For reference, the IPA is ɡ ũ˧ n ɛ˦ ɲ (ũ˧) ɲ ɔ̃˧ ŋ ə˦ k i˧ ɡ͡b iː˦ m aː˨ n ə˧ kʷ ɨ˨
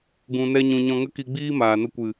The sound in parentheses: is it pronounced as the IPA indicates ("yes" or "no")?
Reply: yes